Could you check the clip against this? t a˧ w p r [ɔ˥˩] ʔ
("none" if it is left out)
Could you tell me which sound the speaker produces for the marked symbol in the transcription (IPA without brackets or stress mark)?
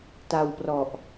ɔ˨˩